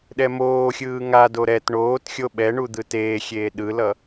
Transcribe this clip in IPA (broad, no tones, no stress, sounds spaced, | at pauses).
ɗ ɛ m oː xʲ ɯː ŋ a d o ɾ ɛ t ɳ oː t xʲ o ɓ ɛ ɳ u d̪ ɯ t eː xʲ eː ɗ ɯ l ʌ